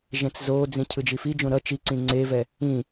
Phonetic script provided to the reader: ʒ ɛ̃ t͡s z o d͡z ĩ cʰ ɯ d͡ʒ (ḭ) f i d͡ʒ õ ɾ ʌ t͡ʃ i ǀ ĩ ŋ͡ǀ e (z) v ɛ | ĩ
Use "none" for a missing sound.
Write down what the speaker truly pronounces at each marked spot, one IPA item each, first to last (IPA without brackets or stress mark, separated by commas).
i, none